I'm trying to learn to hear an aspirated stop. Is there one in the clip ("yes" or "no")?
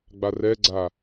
no